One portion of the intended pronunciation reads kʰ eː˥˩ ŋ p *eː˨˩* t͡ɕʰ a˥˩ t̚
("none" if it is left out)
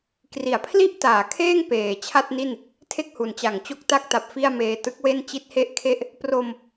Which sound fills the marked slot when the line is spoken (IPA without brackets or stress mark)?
eː˨˩